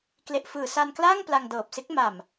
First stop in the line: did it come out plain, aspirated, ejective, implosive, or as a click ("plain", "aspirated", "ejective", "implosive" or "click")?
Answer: plain